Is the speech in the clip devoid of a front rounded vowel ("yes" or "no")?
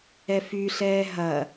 no